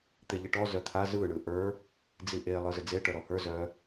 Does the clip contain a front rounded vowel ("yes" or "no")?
yes